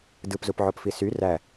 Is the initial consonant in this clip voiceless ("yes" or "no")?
no